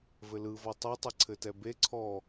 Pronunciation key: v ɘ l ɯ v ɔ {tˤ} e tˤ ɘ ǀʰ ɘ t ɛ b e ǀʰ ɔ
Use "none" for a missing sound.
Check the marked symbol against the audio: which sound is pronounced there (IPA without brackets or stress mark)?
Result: tˤ